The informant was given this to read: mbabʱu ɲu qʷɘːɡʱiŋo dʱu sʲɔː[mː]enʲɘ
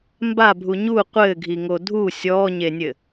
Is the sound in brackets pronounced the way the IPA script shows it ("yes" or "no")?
no